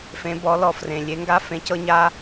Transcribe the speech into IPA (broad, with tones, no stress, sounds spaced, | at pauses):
f ẽ˩˧ b ɔ˩˧ l ɔ˩ f r ẽ˩ lʲ e˩˧ ŋ ɡ a˧ f ẽ˩˧ c ɤ˧ ɲ a˧